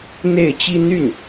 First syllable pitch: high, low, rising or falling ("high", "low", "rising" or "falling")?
falling